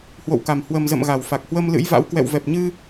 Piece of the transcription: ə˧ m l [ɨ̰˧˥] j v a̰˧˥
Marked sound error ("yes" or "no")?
no